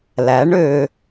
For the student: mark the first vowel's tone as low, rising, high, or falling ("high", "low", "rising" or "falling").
rising